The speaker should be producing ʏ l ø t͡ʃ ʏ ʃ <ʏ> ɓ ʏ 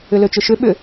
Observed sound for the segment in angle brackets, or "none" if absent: ʏ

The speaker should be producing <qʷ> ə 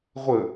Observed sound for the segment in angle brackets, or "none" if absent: ʁʷ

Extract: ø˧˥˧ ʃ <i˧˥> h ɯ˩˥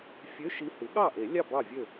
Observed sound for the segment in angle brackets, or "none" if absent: i˧˥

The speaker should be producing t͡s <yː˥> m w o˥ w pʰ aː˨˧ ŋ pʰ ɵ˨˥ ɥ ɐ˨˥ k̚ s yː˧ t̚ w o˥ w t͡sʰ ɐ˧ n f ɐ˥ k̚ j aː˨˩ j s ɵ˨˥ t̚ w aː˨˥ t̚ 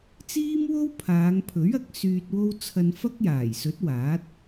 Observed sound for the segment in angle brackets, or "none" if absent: iː˥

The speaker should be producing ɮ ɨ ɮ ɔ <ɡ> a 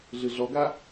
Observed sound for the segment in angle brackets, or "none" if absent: ɡ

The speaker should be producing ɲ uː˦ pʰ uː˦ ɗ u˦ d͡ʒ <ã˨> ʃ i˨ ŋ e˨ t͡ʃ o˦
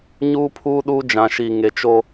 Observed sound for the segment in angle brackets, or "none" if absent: ã˨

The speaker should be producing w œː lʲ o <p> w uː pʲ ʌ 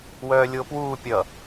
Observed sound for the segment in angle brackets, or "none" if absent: p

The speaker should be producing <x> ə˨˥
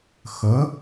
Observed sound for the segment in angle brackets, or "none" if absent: x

